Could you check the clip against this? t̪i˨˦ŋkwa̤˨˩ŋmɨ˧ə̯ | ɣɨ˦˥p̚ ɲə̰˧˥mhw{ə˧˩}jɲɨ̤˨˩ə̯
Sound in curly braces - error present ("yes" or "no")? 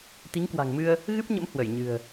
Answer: no